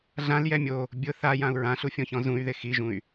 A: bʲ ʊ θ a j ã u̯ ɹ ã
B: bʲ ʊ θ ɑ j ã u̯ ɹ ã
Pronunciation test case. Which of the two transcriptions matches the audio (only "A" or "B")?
A